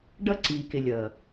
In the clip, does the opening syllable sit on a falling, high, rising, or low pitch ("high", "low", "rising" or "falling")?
high